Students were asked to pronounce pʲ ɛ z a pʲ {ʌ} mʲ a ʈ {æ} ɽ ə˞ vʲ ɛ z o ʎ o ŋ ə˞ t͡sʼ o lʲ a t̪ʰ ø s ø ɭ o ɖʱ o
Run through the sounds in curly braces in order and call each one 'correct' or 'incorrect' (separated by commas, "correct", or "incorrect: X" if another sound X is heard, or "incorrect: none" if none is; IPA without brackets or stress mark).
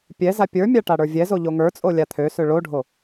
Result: incorrect: ə˞, incorrect: a